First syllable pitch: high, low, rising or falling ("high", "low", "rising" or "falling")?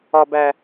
low